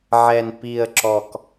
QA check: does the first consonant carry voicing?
yes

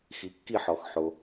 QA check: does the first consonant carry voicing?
no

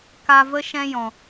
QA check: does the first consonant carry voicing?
no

